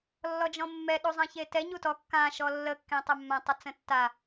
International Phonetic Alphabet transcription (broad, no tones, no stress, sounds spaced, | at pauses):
lː ɔ d͡ʒ ɔ̃ mː ɛ ɗ u zˤ ã ç e t ɛ ɲ u t ɔ kː ã ʃ ɔ lː ə kː ẽ tˤ ə mː ã tˤ ə t͡s ə̃ tː a